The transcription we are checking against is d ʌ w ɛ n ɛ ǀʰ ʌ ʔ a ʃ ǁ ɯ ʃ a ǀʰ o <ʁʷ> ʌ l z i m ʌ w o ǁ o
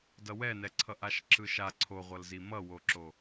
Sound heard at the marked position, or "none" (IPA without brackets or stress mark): ʁʷ